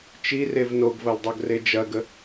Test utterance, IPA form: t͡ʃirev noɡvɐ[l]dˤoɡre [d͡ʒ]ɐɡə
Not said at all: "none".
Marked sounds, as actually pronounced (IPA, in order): l, d͡ʒ

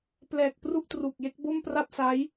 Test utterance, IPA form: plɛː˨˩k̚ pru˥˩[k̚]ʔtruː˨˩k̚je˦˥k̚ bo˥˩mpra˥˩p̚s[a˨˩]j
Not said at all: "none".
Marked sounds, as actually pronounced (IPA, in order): none, a˦˥

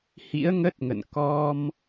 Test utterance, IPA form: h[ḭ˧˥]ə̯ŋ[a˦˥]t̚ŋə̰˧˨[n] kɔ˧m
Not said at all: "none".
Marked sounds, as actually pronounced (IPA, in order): ḭ˧˥, ə˦˥, n

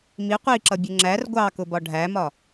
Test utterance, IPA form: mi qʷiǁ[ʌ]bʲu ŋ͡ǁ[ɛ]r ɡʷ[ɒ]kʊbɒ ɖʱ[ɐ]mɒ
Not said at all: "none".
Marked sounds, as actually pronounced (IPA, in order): ʌ, æ, ɑ, æ

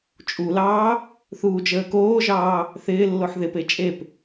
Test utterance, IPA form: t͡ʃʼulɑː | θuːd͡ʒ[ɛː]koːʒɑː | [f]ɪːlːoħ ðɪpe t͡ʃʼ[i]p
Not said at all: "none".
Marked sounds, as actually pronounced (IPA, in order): əː, θ, e

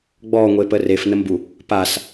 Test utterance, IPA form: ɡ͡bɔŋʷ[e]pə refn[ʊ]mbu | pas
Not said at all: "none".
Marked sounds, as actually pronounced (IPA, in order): e, ə

